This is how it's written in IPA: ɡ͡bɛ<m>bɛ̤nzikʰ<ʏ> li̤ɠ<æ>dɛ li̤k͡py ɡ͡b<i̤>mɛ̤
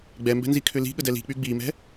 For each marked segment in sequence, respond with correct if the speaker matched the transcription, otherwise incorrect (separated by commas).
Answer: correct, correct, incorrect, incorrect